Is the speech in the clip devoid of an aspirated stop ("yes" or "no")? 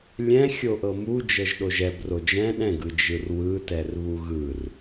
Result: yes